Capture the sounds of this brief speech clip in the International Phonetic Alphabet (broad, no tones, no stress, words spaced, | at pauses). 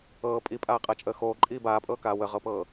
ɤː pʼipʼaːqʼat͡ʃʼəː xoːǃʼiː baːpʼɤːkaː wəʁɤpɤː